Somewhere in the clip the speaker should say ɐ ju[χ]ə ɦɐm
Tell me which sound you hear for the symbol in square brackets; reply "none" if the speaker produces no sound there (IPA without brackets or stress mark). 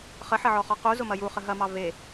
χ